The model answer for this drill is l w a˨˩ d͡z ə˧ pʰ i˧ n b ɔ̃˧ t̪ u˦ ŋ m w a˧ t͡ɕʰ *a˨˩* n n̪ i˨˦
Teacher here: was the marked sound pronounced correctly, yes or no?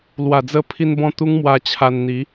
no